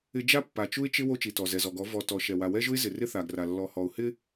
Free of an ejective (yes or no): yes